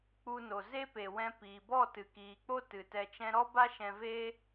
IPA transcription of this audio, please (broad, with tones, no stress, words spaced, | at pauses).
k͡pu˧no˨ ze˦pe˨wɛ̃˧ piː˨bɔ˦˨ tɨ˨kiː˨k͡po˦ tɨ˨tɛ˧t͡ʃɛ̃˦ ɾɔ˦ba˦ ʃɛ̃˧ve˦